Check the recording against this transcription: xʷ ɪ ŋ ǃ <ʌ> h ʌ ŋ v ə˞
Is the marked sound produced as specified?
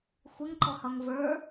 no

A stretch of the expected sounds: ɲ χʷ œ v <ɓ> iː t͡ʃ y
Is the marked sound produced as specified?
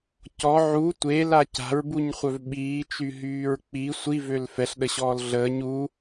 yes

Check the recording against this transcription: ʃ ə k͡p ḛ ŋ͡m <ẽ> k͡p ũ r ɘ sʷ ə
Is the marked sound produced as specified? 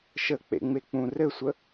no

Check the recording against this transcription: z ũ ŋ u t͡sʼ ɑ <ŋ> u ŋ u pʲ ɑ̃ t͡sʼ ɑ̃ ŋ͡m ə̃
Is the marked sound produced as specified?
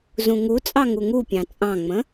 yes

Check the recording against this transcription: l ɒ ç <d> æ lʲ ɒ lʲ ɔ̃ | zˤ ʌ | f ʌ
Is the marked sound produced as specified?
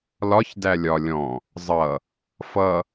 yes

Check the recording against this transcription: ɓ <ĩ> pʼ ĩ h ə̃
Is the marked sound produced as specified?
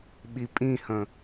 no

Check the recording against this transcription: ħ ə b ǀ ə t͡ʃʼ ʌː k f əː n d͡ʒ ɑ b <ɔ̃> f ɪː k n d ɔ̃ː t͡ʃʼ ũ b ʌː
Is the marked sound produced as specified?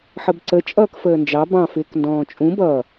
no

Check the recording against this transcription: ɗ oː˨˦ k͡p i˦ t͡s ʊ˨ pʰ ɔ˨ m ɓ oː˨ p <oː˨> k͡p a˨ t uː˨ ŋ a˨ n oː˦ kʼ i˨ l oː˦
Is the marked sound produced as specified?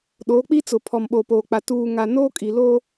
yes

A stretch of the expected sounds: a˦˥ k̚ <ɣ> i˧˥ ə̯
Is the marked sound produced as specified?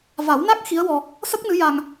no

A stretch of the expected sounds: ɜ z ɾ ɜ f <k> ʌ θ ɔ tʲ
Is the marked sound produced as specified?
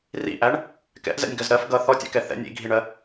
no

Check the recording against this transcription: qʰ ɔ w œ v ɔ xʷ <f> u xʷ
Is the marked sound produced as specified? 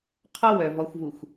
no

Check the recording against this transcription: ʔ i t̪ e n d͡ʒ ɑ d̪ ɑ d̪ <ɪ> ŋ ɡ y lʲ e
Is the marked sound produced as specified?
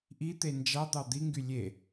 no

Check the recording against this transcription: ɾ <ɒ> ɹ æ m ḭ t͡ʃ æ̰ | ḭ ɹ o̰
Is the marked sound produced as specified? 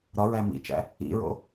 yes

